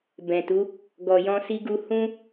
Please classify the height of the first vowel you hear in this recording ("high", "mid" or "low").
mid